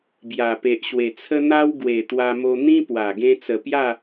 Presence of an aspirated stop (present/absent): present